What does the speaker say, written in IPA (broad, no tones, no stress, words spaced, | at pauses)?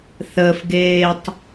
θəːfɡeːtˤ